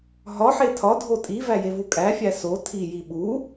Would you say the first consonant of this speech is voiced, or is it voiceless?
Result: voiced